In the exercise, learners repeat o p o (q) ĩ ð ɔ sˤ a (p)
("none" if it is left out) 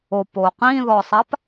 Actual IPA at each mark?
q, p

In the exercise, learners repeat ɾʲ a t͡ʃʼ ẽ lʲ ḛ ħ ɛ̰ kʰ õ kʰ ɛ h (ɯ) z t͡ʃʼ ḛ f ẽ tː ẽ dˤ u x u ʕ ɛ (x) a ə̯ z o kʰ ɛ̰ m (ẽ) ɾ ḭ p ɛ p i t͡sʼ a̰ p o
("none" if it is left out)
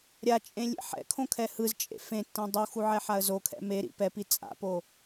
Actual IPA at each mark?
ɯ, ħ, e

